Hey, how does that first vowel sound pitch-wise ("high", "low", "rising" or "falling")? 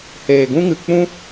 low